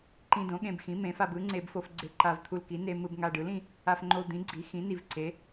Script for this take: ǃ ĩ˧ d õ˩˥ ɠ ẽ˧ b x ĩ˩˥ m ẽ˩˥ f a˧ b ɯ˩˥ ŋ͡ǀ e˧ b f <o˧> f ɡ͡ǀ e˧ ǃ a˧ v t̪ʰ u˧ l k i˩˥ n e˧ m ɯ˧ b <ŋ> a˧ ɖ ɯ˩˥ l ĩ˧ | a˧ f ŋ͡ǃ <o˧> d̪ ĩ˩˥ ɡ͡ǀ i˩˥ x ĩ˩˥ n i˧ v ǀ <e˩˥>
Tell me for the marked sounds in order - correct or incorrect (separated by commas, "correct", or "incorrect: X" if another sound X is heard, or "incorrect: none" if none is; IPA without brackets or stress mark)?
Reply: correct, correct, correct, correct